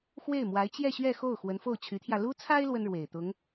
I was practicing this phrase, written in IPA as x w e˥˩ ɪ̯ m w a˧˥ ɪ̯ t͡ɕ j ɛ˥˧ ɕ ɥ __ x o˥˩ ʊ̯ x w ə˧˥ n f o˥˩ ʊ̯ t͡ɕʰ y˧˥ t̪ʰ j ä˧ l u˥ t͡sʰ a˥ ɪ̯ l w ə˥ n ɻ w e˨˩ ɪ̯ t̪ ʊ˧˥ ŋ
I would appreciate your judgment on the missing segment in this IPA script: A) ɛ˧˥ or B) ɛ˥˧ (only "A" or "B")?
B